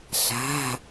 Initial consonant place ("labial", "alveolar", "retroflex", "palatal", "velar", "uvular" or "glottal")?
alveolar